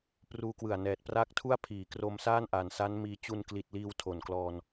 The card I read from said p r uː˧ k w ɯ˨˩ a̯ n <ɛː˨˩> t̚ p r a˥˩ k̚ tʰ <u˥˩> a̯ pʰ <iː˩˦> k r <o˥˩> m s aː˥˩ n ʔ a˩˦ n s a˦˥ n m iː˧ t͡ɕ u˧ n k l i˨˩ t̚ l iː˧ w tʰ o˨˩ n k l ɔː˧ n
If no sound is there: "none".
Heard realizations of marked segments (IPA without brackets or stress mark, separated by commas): ɛː˨˩, u˥˩, iː˩˦, o˧